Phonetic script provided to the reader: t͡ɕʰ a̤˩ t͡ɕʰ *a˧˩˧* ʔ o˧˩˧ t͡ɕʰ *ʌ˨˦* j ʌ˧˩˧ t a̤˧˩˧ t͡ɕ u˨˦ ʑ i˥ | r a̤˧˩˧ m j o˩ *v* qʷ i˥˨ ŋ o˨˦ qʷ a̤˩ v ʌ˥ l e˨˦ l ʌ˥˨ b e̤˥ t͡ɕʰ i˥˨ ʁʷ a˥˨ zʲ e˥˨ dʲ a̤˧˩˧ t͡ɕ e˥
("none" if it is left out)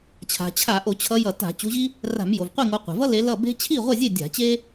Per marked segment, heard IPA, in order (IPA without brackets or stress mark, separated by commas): a˧˩˧, ʌ˨˦, v